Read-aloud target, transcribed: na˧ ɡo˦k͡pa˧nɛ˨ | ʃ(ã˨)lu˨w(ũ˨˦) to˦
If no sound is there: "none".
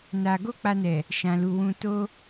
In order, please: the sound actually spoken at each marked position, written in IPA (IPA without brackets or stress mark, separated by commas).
ã˨, ũ˧